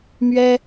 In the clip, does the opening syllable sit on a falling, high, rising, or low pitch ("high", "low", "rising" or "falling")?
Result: high